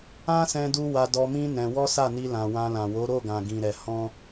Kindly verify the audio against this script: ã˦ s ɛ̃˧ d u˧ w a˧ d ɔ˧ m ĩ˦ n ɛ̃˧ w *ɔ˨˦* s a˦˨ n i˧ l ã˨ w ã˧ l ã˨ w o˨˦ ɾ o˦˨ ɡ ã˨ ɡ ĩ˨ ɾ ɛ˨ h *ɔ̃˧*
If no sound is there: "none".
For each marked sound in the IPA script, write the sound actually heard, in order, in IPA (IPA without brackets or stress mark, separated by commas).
ɔ˦, ɔ̃˧